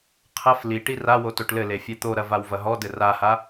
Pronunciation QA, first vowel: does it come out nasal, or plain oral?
oral